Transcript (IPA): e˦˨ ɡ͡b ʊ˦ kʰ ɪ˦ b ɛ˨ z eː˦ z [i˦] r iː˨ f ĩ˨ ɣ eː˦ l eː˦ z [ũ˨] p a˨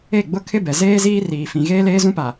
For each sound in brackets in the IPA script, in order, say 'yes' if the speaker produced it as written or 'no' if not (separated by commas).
no, no